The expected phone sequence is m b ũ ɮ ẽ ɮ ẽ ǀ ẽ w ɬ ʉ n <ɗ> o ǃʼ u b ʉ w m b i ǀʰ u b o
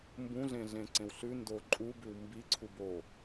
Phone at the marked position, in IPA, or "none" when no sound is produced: d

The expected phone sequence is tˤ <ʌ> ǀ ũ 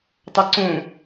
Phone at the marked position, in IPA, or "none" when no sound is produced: ʌ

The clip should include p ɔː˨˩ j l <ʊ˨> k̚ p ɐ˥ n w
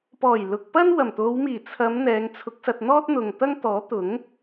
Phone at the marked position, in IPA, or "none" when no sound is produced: ʊ˨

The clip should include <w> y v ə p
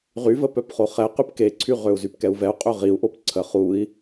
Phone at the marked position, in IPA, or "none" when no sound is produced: ʁ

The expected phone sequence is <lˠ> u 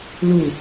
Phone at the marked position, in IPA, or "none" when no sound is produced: l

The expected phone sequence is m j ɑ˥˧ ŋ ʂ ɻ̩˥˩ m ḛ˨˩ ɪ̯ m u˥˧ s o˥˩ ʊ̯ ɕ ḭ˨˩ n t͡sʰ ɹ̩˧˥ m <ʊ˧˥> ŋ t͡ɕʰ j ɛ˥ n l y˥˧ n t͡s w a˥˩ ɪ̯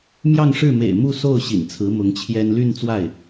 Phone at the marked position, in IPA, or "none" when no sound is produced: ʊ˧˥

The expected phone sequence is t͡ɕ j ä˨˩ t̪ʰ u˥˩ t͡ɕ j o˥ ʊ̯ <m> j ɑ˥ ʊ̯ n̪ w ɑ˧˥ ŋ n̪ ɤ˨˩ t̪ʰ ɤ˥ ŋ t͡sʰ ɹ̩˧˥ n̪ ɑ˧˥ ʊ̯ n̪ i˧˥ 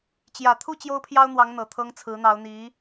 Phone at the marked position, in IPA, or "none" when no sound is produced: pʰ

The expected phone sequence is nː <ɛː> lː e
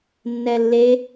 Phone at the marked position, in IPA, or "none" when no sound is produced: ɛ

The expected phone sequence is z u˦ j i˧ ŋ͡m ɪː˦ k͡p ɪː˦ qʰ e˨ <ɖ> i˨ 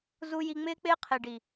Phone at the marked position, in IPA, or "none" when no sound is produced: ɖ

